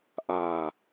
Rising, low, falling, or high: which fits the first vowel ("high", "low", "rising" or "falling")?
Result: low